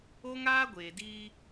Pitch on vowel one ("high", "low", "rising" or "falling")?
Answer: high